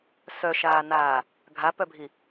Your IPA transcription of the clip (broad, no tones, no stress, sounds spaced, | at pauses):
s œ ʃ aː n aː | ɡʱ a p œ bʱ i